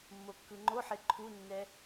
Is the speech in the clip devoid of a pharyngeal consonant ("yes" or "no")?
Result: no